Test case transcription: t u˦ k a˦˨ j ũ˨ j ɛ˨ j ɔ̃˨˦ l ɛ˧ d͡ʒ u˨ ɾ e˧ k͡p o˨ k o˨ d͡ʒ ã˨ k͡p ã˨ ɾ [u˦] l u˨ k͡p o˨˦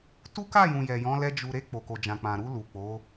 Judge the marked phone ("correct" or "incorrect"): incorrect